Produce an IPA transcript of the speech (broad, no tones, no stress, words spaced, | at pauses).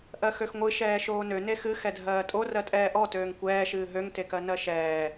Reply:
ʔɜxøxŋʷɨ ʃɛːʃoːnø nexɨ xɛdʱɜːtʼo rɜtʼɛːʔɔ tøːŋkʷɛː ʃɨːɦøŋ tekɜnɜʃɛː